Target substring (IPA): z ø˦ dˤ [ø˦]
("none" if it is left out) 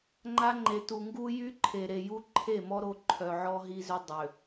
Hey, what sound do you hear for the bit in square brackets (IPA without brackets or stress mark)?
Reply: ø˨